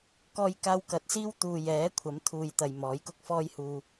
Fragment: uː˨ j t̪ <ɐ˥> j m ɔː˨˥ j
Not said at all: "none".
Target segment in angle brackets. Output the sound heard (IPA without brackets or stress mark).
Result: ɐ˨